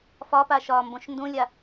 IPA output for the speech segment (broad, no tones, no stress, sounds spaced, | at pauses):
f ɒ p a ʃ ɒː m b õ ʃ n d ũ lʲ a